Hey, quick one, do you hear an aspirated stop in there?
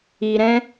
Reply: no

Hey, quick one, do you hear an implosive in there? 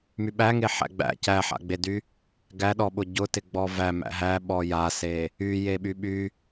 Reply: yes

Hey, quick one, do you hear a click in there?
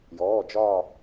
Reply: no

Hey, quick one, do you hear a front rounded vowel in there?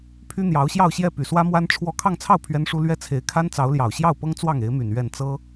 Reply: yes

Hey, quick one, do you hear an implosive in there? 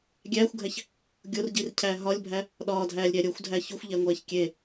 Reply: yes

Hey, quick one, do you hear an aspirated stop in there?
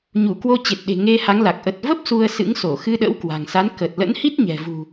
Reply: no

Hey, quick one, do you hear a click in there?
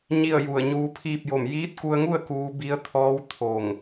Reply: no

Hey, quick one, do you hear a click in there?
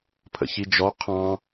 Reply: no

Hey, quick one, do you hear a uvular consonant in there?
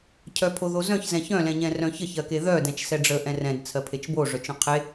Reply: yes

